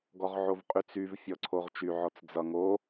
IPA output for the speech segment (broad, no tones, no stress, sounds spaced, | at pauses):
ɡ ɔ ʁ ʕ o v qʼ y t͡s y v fʲ ɔ ǀʰ o ʁ t͡ʃ y ʕ ɔ t͡s d͡z ʌ ŋ o